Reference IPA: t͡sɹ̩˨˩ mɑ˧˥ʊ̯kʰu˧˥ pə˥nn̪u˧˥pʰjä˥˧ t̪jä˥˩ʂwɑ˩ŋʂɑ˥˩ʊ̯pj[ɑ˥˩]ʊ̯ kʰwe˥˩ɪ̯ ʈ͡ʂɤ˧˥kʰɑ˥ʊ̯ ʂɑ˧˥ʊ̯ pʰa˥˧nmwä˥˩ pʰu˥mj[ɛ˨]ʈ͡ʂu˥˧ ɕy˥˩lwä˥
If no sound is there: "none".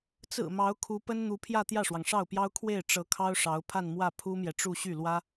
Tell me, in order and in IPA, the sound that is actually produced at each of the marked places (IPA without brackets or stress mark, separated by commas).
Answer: ɑ˥, ɛ˨